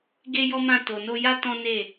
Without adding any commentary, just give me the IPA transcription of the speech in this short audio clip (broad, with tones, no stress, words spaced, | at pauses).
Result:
ɡe˦jɔ˦mã˦˨ to˨no˧ja˦ tɔ̃˦ne˦˨